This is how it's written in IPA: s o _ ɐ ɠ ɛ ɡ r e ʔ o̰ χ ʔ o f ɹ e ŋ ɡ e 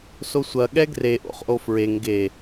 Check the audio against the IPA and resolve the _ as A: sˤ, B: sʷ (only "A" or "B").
B